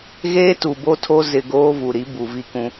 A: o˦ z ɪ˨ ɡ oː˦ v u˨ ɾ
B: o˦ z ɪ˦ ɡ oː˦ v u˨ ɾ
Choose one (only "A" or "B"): A